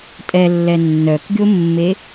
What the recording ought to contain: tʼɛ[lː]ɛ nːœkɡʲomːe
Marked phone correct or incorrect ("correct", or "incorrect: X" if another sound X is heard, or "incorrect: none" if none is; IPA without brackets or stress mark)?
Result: correct